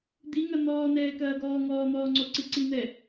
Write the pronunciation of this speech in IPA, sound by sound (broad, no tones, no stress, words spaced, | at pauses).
d̪iŋɐ n̪ɔːnɛː kɐːɡɔːŋɔːn̪ɔː ŋ͡ǀoǀiǀin̪ɛ